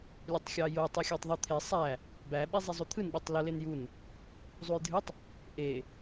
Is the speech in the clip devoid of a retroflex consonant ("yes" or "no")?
yes